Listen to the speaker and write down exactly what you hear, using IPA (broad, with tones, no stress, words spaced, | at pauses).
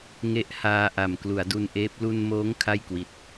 ŋe˦˥ʔhaː˧ʔa˨˩m klu˩˦a̯du˧nʔeː˦˥p̚ lu˧nmoː˦˥ŋ kʰa˥˩jkwi˨˩t̚